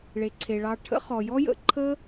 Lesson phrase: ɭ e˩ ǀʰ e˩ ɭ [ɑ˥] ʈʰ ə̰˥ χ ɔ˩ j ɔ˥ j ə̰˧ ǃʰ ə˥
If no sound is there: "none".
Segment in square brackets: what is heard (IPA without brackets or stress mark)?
ɑ˧